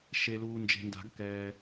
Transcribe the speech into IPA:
ʃ e˨ l uː˨ n d͡ʒ e̤˨ n d a̤˨˩˦ ɡ k ɛː˨

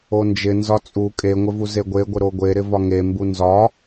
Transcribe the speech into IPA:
o n d͡ʒ ɪ n z ɒ t͡sʼ u kʼ e ŋʷ ɪ v u z e ɡʷ e ɡʷ ɪ ɾ o ɡʷ e ɾ ɪ v ɒ ŋ e m b u n z ɒ

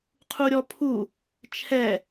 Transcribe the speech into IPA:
qʰ u ɾʲ ɔ pʰ u | t͡ʃʰ ɛ

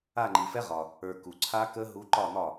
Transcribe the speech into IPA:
a˦˨ ŋ͡ǃ i˨ f ɛ˦˥ ʁ ɒ˨ | ə˞˨ k u˨ ǀʰ a˦˥ k ə˦˥ ɦ u˦˥ ǃ ɒ˦˨ n̪ ɒ˦˨

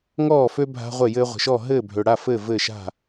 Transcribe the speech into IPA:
ŋ ɔː˥˩ f ø˦ bʱ a̤˦ ʁʷ e˥˩ j ɘː˦ ʁʷ ə̤˨ ʃ ɔ˥˩ ɦ ɘː˥˩ bʱ ø˨ ɽ a˥˩ f ɘː˥˩ v ɘ˥˩ ʃ a̤˥˩

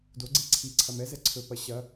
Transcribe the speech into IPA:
d o ɡ͡ǀ e ǀʰ i ǀʰ ɐ m ɛ z ɛ ǀʰ ɵ p ɐ ɕ ɐ

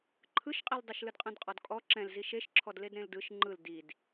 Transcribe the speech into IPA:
ǃʰ ɯ ʃ qʼ i l dˤ e ʃ l ɯ d qʼ ɛ̃ d qʼ ɔ d kʼ ɔ ǁ ɛ̃ l z i ʃ e ʃ ǁʰ ɔ d l e d ɾ ẽ l d ɯ ʃ ŋ͡ǃ ɯ l d i d

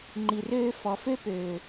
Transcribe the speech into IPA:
ŋ͡ǃ i˨ r øː˧ f ɔ˨ f ø˦ p øː˨

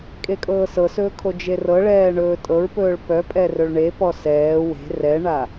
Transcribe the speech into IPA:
kʼ e kʼ ɤː s ɤ s ɵː kʰ o d͡ʒ e r ɤ ɭ ɛː ɳ ɵː tʼ ɤ ɹ p ɵː ɭ p œ pʼ ɛ r ɵ ɭ ɳ e p ɔ s ɛː w e̤ r ɛ ɳ a

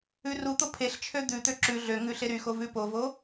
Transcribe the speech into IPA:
ʉ r u t̪ o pʰ e ɬ t͡ʃʰ ø d̪ ʉ t̪ ø ǁ ʉ ɮ ø ŋ ʉ ɬ e ɾ y x o v ʉ p o v o

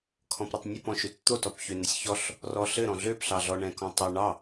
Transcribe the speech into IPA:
kʰ ɔ̃ p ɾ ɘ tˤ nʲ ɘ p ɔ̃ ʃ ø t t̪ o t ɔ p ç ø n ɘ sʲ ç ɔ ɬ | r ɔ ɬ ɘ ɾ ɔ̃ ɮ ø p ɬ ɑ ɮ ɔ ɳ ɛ̃ k ɔ̃ tˤ ɛ ɳ ɑ

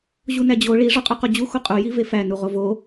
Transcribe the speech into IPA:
ʑ u n æ d͡ʑ o ɭ i ʐ ɒ qʼ u q o d͡ʑ u x o qʼ u j i v e f æ n u ʁ o v o

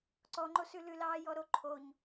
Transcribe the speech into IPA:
ǀ ɔ ŋ͡ǃ o s ʉ l ʉ l ɑː j ɔ ɾ o ǃʰ o ɲ

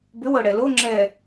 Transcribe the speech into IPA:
b ʏ w ɤ ɽ ɛ l o ŋ͡ǁ ɛ

